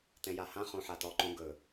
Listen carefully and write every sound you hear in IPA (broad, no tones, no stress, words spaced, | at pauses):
tɛ̃jahã χõħatɔ ǃõ ɡɵ